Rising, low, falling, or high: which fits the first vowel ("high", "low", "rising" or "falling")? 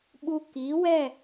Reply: high